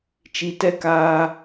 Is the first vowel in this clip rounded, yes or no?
no